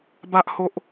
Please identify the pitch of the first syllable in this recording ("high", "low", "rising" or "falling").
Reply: high